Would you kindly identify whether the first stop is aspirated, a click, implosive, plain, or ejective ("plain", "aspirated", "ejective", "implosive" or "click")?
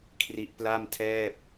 aspirated